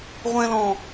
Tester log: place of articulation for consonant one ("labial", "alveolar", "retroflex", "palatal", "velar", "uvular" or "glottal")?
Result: uvular